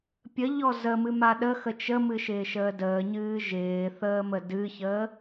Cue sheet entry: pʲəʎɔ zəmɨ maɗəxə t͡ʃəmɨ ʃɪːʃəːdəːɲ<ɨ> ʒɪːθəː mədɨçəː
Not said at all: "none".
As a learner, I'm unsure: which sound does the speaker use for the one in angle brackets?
ɨː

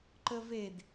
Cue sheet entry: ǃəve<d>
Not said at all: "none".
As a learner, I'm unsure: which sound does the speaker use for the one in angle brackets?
d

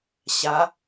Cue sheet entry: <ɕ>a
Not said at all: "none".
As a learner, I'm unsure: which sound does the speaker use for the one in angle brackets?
ɕ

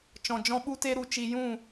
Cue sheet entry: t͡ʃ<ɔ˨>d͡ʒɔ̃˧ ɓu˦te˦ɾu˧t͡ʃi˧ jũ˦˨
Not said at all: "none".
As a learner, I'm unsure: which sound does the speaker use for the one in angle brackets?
ɔ̃˨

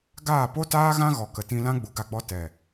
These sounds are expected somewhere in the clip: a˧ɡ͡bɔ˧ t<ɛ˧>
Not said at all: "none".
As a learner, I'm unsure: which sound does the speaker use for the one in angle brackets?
ɛ˨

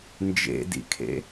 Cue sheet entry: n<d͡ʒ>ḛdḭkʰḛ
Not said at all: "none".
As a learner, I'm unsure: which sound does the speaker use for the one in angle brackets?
d͡ʒ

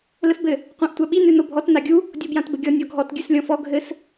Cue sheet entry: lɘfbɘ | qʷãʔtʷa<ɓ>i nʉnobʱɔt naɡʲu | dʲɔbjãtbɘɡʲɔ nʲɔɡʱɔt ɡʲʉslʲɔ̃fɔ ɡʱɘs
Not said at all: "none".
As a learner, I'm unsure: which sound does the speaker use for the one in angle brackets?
ɓ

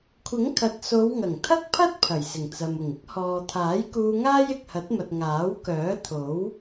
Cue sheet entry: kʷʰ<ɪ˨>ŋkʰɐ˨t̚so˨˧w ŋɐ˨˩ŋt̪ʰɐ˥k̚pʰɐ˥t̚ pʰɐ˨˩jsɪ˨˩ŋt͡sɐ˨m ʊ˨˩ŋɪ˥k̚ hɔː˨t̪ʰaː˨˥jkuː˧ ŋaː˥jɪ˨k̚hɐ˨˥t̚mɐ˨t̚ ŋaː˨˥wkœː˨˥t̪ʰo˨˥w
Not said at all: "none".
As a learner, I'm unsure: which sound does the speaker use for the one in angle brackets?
ɪ˨˥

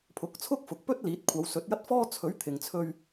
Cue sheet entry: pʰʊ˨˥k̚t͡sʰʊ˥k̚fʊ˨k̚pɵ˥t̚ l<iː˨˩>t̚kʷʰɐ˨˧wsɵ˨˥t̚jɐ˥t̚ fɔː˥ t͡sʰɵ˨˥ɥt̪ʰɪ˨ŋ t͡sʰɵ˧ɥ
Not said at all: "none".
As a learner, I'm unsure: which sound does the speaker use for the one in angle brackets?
iː˨˥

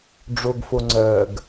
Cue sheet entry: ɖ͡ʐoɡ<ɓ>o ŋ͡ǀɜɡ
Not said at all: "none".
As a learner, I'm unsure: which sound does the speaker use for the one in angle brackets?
f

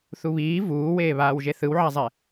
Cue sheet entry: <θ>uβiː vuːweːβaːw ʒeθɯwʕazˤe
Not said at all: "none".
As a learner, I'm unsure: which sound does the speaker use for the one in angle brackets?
θ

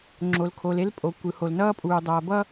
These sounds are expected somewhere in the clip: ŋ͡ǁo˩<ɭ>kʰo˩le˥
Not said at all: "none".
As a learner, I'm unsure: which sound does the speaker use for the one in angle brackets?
l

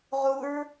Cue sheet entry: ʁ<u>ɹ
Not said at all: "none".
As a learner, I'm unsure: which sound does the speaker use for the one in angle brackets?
u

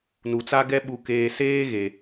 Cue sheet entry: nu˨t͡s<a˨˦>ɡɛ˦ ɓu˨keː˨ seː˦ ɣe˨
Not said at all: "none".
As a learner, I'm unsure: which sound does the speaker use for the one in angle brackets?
a˦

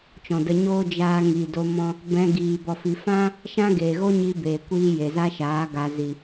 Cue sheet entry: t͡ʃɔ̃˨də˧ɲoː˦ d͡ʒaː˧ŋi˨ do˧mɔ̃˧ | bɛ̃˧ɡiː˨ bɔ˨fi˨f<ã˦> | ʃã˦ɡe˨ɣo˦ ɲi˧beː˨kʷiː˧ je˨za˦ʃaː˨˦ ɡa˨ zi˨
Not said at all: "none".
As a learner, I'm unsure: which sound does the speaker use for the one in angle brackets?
ã˦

